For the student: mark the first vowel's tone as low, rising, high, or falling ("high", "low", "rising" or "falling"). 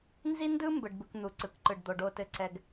high